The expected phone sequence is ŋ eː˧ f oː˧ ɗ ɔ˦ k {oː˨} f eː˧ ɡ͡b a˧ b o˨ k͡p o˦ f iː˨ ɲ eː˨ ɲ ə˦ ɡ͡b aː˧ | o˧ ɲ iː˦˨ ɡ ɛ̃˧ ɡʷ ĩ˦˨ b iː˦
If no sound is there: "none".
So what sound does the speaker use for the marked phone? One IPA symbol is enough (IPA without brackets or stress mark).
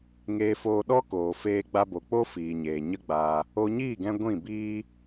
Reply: oː˨